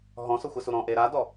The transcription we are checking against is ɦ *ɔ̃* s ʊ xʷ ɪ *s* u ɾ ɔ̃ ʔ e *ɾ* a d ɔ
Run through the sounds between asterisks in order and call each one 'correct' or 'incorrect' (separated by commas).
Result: correct, correct, correct